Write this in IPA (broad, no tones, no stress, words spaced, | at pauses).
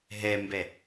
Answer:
ɦɛmbɛ